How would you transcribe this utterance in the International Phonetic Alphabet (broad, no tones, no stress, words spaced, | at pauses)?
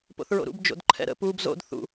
po̰θɹo̰ɾṵb d͡ʒo̰dǃʰɛ̰ɾə̰ pub zo̰d θṵ